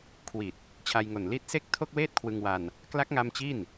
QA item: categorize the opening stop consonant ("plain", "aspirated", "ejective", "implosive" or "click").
aspirated